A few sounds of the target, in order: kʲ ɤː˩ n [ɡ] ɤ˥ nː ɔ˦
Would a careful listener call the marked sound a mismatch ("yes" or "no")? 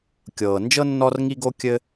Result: yes